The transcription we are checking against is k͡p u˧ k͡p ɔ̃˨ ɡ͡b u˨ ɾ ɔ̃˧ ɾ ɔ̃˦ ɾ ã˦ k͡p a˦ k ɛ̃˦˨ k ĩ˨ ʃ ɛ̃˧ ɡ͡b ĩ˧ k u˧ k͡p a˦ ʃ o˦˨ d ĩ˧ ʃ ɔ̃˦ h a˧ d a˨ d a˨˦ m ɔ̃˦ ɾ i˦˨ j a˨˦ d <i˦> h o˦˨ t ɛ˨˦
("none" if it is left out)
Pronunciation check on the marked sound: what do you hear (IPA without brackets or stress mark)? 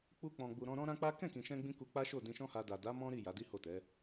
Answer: i˦